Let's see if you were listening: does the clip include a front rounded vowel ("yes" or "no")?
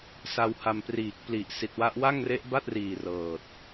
no